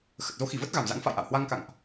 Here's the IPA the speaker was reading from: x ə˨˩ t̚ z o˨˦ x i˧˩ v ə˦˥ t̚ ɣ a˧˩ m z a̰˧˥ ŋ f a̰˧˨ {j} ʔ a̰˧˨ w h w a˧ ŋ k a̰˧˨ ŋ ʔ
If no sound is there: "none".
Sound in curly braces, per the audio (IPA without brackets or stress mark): j